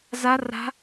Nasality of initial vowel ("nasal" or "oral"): oral